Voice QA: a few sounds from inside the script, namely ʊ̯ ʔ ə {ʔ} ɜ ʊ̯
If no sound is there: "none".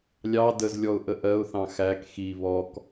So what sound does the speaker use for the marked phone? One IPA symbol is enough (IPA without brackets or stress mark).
ʔ